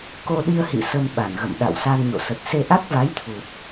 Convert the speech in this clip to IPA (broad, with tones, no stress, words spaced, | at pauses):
ko˧ɗi˧ə̯hḭ˧˨ sə˧mɓa˧˩nɣə̰˧˨m ɗa̰˧˨wsa˧nɲo̰˧˨sə˨˩t̚ se˧ʔa˦˥k̚va˨˦j t̪ʰu˨˩t̚